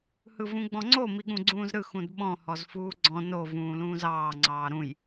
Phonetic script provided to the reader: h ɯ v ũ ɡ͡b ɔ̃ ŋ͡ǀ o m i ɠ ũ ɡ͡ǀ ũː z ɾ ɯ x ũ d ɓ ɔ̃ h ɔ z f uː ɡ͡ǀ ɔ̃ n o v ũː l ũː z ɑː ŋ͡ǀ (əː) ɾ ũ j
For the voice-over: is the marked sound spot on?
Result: no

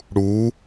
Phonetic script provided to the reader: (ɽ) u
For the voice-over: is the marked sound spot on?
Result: yes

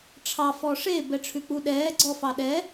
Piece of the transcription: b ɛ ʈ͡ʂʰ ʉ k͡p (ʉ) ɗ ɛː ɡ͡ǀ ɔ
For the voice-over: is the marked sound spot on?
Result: no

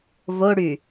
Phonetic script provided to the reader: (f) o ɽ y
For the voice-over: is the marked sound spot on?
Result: no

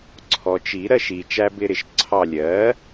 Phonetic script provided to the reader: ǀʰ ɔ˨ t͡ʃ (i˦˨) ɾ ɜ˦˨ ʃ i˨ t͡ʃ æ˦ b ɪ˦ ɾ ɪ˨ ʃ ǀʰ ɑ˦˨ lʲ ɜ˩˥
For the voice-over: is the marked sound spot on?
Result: no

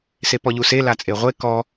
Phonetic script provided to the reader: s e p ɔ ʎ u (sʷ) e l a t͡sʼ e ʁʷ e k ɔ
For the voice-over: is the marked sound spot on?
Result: no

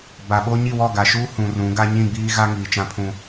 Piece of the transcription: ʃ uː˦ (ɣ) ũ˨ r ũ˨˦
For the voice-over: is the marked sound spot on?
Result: no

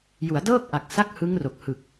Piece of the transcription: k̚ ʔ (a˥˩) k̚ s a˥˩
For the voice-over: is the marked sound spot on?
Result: no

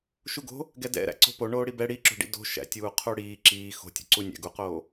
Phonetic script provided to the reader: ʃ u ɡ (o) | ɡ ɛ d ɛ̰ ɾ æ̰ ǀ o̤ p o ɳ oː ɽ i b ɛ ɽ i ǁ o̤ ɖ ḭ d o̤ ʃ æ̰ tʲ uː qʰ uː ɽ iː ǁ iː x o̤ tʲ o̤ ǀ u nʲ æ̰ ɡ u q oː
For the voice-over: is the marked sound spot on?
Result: no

